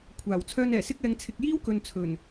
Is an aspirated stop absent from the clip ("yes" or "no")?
no